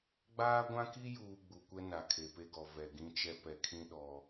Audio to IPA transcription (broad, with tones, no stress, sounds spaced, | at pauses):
ɡ͡b aː˦ ɡʷ ã˦ k i˦ j uː˨ ɡ͡b u˨ kʷ ɛ˦ n a˨ kʰ e˨ p e˦ ɡ ɔ˨ v ɛ˨ ɡ ĩ˦ t͡ʃ ɛ˦ p ɛ˨ kʰ ĩ˦ ɗ ɔ˦